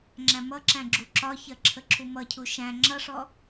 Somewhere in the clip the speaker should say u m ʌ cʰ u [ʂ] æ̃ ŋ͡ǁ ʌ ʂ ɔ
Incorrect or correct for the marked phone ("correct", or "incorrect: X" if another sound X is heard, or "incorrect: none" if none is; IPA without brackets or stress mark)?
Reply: incorrect: ʃ